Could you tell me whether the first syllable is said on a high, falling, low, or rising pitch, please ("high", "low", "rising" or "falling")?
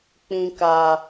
low